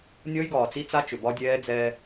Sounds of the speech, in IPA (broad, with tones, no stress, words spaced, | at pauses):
nʲɔ˦jɡɒː˨t͡si˦t͡sa˦ t͡ʃʏ˨bɒ˦dʲɛː˦ d͡zɛː˦